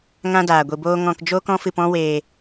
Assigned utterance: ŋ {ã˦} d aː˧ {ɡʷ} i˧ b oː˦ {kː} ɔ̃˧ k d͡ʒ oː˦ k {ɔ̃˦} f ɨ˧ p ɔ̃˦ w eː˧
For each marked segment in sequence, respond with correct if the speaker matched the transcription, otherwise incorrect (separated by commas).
correct, correct, incorrect, correct